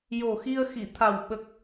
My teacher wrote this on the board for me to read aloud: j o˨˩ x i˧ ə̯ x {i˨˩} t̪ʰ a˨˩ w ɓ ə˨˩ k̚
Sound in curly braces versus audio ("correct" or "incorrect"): incorrect